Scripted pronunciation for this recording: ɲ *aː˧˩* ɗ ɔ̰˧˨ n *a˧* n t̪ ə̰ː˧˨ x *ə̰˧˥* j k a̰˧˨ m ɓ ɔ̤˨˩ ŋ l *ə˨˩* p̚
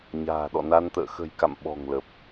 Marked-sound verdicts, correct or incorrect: incorrect: a̤ː˨˩, correct, incorrect: ə̤˨˩, correct

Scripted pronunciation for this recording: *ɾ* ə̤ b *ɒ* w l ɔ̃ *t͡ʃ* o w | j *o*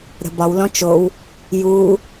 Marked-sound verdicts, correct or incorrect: correct, correct, correct, incorrect: u

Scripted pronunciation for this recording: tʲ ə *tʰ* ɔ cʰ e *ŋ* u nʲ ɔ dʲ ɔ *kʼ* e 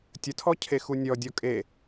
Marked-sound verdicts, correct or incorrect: correct, incorrect: x, correct

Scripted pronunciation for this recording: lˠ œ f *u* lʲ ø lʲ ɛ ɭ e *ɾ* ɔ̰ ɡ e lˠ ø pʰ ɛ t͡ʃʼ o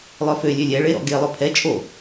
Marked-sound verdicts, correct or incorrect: incorrect: ø, correct

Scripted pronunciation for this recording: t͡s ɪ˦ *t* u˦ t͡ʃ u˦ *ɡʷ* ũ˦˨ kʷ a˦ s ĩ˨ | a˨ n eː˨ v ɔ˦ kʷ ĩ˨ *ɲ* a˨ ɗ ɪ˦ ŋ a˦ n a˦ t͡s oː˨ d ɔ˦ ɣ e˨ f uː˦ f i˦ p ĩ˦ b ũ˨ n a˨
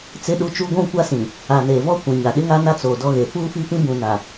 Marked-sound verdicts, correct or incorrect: incorrect: ɗ, correct, correct

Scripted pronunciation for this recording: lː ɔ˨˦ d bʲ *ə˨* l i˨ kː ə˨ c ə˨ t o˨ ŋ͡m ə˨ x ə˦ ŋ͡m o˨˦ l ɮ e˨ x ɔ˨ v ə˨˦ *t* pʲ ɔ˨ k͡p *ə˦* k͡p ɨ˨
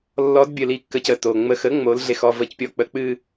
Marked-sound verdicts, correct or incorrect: correct, incorrect: c, incorrect: ə˨

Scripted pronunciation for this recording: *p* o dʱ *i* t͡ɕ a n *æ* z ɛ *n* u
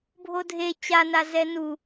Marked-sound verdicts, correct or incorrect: incorrect: bʱ, incorrect: e, incorrect: a, correct

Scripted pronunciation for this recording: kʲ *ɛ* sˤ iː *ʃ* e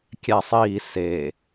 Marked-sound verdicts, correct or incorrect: incorrect: æ, incorrect: s

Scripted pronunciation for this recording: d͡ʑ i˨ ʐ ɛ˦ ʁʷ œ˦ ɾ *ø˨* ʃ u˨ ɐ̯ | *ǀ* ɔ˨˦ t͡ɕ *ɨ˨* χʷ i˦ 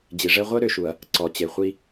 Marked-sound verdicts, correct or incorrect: correct, correct, incorrect: e˨

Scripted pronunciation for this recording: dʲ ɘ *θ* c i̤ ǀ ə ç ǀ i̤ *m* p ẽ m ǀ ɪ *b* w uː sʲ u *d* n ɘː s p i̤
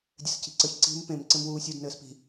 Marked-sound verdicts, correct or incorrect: incorrect: s, correct, incorrect: m, correct

